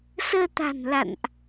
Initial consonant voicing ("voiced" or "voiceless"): voiceless